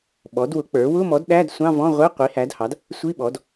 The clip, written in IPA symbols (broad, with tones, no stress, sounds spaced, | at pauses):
ɓ ɔ˩˥ d w ʊ˩˥ k͡p ə˞˩˥ w ʊ˧˥˧ m ɔ˩˥ d ɗ æ˧˥˧ d sʷ ɑ̃˧˥˧ v ɔ̃˧˥˧ ʁʷ ɛ˧˥˧ qʷ i˩˥ h æ˩˥ d h ɑ˩˥ d | sʷ i˧˥˧ ɓ ɔ˩˥ d